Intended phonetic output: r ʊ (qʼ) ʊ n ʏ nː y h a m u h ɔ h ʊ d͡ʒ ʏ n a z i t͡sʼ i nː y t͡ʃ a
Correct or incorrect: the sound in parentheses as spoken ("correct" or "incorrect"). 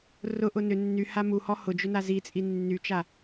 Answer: incorrect